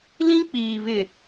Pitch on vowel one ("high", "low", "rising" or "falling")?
high